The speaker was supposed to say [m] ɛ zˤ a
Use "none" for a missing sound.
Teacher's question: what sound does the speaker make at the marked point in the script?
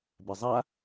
b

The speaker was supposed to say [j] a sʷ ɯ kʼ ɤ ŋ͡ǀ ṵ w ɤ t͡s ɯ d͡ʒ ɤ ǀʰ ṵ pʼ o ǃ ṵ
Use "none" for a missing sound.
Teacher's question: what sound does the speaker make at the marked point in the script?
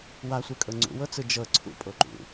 w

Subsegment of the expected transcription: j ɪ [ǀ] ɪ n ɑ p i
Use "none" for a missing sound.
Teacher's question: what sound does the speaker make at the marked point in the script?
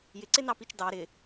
ǀ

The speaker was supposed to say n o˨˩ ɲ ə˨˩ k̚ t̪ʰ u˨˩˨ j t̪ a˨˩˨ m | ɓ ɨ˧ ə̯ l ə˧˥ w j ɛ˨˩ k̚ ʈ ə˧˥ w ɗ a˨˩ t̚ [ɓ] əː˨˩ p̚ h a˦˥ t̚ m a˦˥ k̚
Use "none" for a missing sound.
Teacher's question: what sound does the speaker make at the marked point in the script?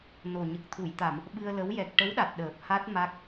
ɗ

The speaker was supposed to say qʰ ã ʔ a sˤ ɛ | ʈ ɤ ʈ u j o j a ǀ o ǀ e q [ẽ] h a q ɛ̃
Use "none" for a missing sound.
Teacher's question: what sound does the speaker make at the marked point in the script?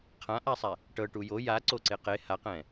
e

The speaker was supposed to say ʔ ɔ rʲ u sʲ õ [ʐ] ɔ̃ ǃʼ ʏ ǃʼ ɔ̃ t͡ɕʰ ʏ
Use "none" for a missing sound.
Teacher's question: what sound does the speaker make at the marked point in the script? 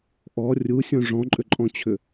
ʐ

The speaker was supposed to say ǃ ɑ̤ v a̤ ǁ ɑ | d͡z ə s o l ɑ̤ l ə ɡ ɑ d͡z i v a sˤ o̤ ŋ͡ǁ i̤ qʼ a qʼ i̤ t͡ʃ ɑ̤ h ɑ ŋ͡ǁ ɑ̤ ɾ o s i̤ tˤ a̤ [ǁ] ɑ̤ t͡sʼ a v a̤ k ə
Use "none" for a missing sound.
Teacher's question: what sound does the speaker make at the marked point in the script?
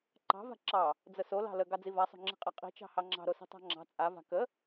ŋ͡ǁ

